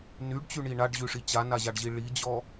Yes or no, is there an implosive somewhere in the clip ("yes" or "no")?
no